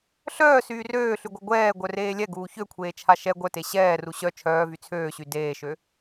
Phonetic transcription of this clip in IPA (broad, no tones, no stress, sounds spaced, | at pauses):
ɬ œː s yː r øː ɬ y ɡʷ œ ɡʷ ɛː ɡʷ œ r eː lʲ ɛ ɡ uː ç ø kʷʰ eː t͡ʃʰ a ʃ ɛ ɡʷ œ t e ɕ ɛː r u ɕ œ t͡ʃʰ œː v y t͡sʰ øː ɕ y d eː ʃ ø